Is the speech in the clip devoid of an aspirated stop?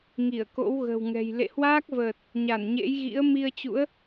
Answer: yes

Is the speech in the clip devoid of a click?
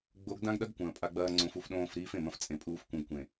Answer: no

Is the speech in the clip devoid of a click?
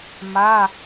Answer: yes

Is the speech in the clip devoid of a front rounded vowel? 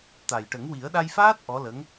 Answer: yes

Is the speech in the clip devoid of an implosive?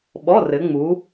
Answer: no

